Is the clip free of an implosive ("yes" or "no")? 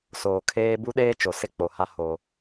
no